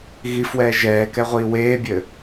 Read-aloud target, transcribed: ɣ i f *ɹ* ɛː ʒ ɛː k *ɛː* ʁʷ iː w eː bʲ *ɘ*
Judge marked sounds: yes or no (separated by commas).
no, no, yes